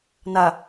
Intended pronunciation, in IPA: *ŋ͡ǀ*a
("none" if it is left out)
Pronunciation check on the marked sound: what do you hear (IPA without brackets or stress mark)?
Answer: n